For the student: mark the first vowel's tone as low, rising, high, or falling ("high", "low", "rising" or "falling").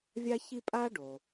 high